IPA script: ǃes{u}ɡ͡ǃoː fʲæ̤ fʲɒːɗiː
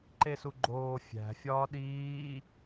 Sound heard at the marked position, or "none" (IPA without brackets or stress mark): u